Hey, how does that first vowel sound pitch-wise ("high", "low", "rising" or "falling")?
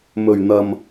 low